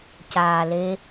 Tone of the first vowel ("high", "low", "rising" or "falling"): low